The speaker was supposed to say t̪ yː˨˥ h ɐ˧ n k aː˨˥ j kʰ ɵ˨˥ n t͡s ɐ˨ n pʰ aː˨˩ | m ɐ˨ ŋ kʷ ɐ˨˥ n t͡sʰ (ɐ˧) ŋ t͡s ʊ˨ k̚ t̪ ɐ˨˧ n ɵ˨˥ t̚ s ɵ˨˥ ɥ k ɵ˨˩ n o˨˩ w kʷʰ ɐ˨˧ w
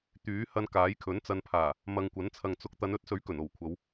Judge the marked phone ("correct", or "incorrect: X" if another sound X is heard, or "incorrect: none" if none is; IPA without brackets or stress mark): incorrect: ɐ˨